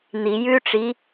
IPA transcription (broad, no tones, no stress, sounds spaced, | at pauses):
n̪ i j ʉ ʈ͡ʂ i